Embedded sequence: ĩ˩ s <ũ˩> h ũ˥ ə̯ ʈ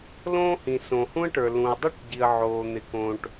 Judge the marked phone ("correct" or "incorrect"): incorrect